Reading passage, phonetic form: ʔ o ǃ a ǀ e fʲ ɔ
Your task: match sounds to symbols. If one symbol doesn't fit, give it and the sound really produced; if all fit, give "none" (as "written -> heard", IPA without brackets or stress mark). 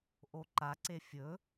ɔ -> ɵ